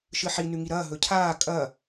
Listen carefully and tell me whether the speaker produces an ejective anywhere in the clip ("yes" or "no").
yes